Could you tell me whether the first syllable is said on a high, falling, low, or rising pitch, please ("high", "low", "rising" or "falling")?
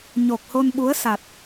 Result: low